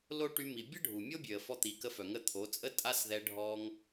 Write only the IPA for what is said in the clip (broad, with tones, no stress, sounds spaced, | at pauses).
l o˦ ʈ y˧ m i˨ bʲ ə˦ ɖʱ u˨ mʲ o˦ bʲ ø˨ ə̯ f ɔ˧ t̪ i˨˦ k ə˧ f œ˨ ŋ ə˧ t̪ʰ o˨˦ t͡sʼ ə˦ tʼ a˦ s ð ɛ˧ ɖʱ ɔ˧ ŋ